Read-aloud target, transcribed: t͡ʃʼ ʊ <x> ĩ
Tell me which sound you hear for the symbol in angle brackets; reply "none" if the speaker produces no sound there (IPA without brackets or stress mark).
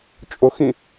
x